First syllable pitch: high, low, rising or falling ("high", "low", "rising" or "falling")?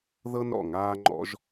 high